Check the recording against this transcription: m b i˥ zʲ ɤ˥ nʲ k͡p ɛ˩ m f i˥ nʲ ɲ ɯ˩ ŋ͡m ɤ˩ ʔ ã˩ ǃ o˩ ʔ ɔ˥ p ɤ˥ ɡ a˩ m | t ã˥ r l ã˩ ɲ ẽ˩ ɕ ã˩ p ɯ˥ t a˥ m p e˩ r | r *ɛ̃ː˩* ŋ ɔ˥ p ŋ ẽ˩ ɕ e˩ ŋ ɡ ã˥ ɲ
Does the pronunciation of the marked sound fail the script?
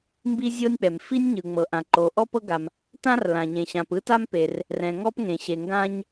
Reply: yes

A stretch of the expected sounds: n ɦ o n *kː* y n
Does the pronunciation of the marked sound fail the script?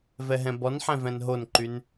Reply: yes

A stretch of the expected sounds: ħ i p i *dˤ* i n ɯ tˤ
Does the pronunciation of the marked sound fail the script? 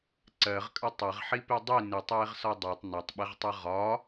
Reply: no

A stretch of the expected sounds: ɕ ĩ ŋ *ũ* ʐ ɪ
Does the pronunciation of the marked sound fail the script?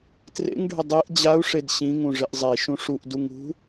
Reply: no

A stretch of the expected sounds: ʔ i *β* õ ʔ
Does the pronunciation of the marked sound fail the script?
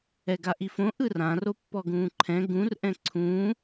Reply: yes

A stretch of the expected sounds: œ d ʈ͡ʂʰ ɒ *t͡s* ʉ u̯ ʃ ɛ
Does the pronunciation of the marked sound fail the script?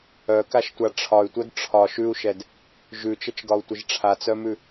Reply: yes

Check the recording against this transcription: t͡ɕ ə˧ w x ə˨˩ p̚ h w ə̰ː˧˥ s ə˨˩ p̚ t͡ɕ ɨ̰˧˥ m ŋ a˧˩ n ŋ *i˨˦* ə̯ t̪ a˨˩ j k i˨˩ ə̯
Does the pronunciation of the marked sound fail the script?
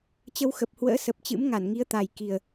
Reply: no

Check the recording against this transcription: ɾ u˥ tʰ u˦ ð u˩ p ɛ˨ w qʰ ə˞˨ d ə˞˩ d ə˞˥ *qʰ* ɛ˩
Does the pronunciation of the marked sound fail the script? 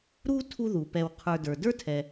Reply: yes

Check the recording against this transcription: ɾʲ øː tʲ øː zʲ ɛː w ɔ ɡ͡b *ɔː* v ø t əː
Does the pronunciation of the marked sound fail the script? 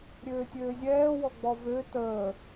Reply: yes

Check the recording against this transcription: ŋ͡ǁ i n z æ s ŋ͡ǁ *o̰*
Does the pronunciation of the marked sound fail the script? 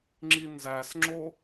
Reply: yes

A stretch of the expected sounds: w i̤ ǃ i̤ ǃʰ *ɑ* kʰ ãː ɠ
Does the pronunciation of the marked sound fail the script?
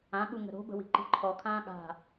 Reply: yes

